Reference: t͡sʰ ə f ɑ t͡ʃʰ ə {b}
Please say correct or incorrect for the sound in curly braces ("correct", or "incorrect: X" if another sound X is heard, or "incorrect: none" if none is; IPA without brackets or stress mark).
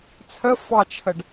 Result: incorrect: ɖ